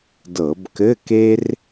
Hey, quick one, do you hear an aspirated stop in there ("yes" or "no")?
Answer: no